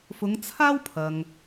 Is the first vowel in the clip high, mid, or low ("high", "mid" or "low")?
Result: high